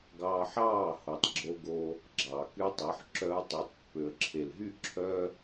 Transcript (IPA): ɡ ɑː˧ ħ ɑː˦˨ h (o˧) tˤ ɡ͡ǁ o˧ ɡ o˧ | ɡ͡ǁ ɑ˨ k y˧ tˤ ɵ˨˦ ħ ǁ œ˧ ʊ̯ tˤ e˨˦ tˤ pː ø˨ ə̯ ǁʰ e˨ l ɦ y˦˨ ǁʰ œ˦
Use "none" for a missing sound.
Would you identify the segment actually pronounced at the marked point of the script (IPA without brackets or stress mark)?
o˨